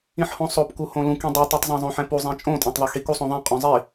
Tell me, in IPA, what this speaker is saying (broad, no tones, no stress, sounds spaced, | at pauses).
ĩ ħ h õ sˤ o p k u h õ l ũ k ĩ dˤ ɜ tˤ u tˤ zˤ ɛ̃ zˤ õ ħ ɛ̃ p u zˤ ĩ t͡ʃʼ õ tʼ õ tˤ ðˤ y x i k u sˤ õ ðˤ ĩ qʼ ũ zˤ i